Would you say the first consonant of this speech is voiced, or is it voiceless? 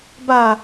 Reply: voiced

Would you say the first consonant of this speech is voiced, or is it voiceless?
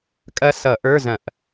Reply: voiceless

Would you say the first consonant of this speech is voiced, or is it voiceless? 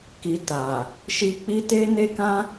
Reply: voiceless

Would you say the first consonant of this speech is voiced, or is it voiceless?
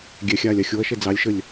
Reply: voiced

